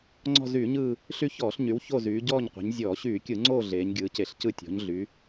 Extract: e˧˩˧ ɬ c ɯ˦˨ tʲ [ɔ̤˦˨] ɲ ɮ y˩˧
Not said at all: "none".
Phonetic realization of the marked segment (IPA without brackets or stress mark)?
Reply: ɔ̤˩˧